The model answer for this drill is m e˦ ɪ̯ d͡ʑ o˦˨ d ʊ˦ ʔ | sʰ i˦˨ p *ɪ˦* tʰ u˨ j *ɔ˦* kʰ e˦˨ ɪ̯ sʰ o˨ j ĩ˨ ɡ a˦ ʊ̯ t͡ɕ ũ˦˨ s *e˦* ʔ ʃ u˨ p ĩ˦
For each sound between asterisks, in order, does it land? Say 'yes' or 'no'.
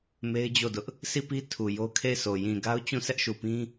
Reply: no, no, no

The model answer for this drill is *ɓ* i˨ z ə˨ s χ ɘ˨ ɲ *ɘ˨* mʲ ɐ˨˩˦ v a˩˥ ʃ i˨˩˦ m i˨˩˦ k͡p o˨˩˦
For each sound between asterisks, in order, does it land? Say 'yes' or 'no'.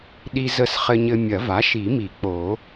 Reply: no, yes

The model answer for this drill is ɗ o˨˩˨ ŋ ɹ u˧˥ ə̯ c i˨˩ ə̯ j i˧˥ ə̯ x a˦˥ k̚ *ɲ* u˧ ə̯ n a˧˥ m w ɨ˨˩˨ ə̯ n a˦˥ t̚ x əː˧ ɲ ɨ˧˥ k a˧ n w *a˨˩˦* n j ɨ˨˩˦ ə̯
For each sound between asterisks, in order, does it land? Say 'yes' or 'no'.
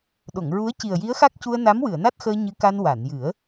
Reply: no, no

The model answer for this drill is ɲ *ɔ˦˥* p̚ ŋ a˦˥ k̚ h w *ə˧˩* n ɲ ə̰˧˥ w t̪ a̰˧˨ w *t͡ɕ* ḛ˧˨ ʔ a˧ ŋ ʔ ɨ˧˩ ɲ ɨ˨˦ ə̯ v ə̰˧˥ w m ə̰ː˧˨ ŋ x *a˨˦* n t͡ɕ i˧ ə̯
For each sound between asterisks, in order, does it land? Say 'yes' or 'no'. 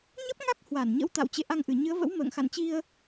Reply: no, no, yes, no

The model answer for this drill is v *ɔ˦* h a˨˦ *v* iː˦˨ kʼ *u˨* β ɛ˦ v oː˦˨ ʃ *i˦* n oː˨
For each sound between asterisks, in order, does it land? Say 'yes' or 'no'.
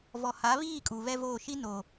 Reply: no, no, yes, yes

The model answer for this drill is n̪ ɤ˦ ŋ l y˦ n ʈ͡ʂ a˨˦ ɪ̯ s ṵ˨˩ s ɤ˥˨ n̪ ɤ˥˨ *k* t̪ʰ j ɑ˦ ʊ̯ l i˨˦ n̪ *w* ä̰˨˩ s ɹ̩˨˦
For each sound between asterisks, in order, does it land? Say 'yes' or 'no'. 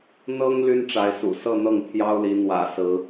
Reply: no, yes

